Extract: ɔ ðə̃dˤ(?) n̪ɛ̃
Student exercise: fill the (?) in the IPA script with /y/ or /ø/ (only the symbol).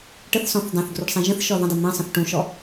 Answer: y